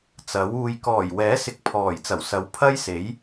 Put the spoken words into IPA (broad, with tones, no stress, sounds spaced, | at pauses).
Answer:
t͡s ɐ˨˥ w uː˧ j k ɔː˨˩ j w ɛː˨˥ s ɪ˧ k̚ pʰ ɔː˨˩ j t͡s ɐ˨˩ w s ɐ˨˥ w pʰ ɐ˥ j s e˨˥ j